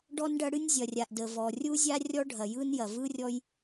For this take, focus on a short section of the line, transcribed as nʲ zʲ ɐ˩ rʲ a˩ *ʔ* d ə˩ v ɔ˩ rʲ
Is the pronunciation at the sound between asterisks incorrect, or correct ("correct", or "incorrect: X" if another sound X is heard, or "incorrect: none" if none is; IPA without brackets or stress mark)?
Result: correct